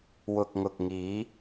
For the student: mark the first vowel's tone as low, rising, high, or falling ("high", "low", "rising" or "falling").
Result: low